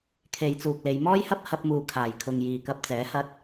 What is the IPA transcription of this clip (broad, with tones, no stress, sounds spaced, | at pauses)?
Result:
kʰ e˨˧ j t͡s uː˨ k̚ l e˨˧ j m ɔː˥ j h ɐ˥ p̚ h ɐ˧ p̚ m uː˨ kʰ aː˨˩ j kʰ ʊ˨ ŋ j iː˨ k ɐ˧ p̚ t͡s ɛː˨˥ h ɐ˧ t̚